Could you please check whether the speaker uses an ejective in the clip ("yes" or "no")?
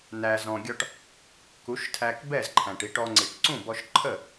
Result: no